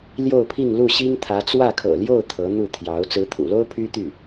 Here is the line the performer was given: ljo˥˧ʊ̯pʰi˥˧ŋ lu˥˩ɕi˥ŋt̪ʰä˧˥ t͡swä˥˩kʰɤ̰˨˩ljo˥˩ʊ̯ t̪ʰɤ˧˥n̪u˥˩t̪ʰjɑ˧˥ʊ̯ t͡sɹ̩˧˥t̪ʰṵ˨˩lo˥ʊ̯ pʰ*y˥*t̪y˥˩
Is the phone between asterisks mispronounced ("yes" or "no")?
no